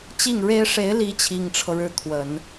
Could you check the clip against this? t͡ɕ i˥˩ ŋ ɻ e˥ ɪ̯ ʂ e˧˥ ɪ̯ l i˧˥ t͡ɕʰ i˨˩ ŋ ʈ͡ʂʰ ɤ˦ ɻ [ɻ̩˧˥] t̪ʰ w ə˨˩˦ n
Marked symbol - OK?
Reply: yes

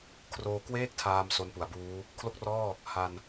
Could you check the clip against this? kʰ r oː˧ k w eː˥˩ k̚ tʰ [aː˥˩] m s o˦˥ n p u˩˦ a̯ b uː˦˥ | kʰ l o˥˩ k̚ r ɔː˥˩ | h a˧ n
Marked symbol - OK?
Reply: no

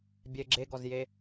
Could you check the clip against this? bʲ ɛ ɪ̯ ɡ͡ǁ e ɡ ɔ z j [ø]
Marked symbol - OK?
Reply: no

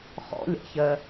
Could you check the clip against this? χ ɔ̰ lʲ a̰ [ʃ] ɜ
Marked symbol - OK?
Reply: no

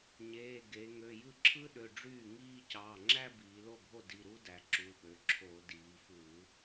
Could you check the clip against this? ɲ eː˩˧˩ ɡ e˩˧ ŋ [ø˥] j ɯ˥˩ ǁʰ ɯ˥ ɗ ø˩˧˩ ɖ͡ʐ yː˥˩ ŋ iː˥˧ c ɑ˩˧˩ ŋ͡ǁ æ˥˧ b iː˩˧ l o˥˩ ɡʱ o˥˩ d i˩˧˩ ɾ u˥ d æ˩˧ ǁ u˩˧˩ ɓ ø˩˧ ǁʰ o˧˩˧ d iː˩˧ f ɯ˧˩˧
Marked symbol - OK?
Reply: no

